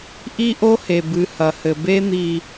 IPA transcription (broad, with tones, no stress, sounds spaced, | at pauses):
ʔ i˦ ʔ o˦ h e˨ b ɨ˨ h ɐ˨ h ɘ˨ b e˥ n̪ i˦